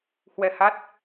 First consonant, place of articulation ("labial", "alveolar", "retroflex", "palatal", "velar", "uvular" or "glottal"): glottal